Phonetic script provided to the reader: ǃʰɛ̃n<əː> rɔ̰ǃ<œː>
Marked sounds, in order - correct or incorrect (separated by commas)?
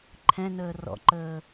correct, incorrect